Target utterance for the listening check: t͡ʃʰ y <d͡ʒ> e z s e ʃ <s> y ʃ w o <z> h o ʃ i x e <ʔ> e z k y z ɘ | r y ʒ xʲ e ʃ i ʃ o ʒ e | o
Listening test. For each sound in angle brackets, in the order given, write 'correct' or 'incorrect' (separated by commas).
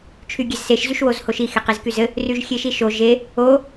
incorrect, incorrect, correct, incorrect